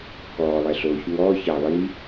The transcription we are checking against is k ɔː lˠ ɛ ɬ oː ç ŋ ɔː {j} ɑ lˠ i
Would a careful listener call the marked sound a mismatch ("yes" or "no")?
yes